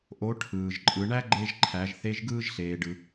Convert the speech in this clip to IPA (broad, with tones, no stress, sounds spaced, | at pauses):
ʔ o˧˥ ʈʰ ɯː˩ ʒ ǃʼ ɯ˩˧ ɳ æ˥ ɡ͡ǃ e˧ ʒ ǃʰ æ˩˧ ʒ θ e˧˥ ʒ ɡ ɯː˥ ʒ ɬ eː˩ ɖ ɯ˩